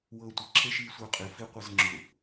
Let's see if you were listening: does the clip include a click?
yes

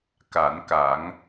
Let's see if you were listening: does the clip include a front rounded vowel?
no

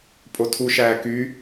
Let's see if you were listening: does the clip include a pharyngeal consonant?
no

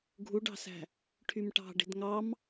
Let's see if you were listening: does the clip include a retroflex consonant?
yes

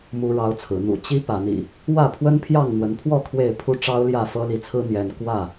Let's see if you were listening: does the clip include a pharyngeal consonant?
no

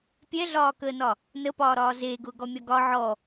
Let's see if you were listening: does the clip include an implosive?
no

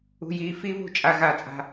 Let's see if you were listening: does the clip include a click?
no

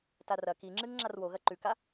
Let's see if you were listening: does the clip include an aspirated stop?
no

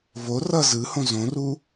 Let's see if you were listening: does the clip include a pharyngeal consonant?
no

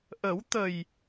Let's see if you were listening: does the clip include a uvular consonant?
no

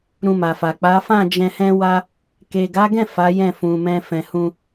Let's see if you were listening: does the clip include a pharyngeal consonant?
no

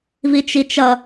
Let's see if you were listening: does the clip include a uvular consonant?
no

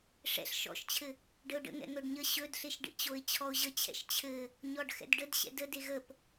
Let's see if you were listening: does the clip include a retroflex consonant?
yes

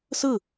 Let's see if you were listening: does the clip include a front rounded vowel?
no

